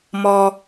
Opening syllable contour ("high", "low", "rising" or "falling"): low